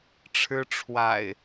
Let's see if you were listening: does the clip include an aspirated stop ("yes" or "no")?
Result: yes